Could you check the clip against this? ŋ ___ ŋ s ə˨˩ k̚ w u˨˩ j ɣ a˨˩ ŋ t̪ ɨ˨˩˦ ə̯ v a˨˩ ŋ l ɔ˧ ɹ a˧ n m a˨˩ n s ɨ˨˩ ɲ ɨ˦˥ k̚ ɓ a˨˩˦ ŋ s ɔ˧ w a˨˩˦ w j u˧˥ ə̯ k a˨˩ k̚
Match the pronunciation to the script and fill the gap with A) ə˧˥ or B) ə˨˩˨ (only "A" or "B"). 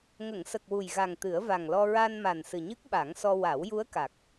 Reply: B